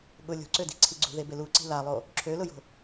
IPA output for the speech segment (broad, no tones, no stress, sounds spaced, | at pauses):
ɠ ʊ lʲ o̤ ǀ ø d i̤ ǀʰ i ɡ͡ǀ ṳ ð e b e l u ǀ i̤ l a lˠ o | ǁʰ ø l ʊ j o̤